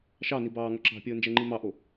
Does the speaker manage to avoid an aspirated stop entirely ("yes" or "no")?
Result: yes